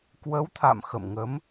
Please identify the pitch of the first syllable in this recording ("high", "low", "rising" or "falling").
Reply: rising